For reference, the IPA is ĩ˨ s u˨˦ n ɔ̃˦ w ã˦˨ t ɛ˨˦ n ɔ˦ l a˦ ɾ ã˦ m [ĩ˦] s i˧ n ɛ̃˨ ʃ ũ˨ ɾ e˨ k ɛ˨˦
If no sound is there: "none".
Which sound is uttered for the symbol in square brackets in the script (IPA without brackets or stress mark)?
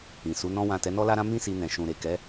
ĩ˦